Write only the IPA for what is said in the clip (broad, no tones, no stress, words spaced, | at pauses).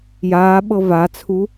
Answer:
jaːɓɤ vat͡sʰu